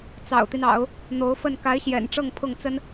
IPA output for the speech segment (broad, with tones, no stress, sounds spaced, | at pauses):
t͡s ɑ̰˨˩ ʊ̯ t̪ i˦ n ɑ̰˨˩˦ ʊ̯ | n̪ o˧˥ ʊ̯ f ə˥˩ n k a˧˥ ɪ̯ ɕ j ɛ̰˨˩ n ʈ͡ʂ ɤ˥˧ ŋ pʰ ʊ˥˩ ŋ t͡s ə˥ n